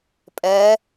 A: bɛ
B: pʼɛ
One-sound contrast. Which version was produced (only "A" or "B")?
B